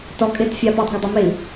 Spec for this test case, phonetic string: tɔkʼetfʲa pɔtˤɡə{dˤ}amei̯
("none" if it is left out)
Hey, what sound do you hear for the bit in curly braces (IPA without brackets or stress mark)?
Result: dˤ